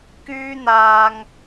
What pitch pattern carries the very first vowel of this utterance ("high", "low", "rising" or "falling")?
high